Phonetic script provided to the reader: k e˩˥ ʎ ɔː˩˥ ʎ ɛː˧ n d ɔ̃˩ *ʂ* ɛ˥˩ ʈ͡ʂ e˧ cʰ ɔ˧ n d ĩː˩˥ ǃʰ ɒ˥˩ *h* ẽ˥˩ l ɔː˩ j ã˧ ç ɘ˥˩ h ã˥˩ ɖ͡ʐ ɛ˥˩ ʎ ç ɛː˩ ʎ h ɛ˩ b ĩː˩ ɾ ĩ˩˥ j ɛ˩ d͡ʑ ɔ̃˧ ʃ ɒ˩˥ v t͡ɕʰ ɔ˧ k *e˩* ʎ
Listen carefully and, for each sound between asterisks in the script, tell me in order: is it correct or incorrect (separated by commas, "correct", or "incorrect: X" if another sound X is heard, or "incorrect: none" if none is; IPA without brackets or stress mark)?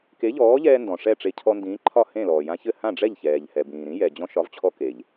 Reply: correct, correct, correct